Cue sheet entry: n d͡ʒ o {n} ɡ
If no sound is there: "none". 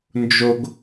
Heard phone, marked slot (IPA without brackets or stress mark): none